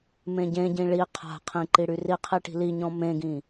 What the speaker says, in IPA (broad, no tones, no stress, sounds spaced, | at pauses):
m ẽ ɟ ẽ ɟ ĩ ɭ i qʰ a̤ qʰ ĩ ǃ i ɽ y r i qʰ i ʈ i̤ l i ɲ ɔ̃ m ẽ ɡ ĩ